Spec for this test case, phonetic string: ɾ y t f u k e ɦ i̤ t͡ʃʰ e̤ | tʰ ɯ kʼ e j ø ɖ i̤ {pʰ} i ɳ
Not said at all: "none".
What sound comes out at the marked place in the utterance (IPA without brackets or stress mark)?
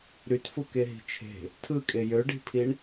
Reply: pʰ